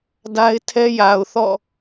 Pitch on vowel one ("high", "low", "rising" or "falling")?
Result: high